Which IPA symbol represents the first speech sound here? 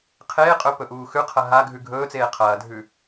qʰ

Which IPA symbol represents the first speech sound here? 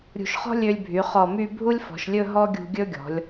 ɾʲ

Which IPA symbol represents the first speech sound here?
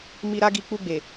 m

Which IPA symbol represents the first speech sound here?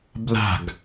b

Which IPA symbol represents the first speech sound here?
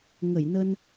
ŋ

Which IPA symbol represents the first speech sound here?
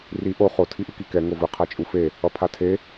r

